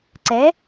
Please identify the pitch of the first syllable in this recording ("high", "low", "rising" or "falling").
rising